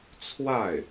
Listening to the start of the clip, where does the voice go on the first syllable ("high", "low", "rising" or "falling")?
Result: falling